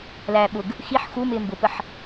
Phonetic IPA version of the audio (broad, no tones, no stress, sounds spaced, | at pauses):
l æː ɓ ʊ ɡ | x i ħ x u m ɪː m b ʊ p ə ħ